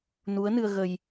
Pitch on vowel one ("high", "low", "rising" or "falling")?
rising